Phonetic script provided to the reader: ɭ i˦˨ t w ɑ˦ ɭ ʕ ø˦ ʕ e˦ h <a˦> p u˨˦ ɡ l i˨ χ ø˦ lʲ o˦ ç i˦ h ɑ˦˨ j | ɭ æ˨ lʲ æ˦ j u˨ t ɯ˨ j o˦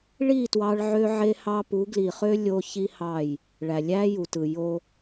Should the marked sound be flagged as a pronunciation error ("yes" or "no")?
yes